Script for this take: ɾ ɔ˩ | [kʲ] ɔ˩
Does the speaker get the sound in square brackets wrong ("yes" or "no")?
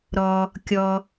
no